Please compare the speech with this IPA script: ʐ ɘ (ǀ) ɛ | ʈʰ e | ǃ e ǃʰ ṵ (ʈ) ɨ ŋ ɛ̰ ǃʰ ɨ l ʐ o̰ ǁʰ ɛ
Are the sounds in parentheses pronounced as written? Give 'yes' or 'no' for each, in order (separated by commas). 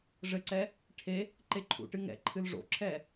yes, yes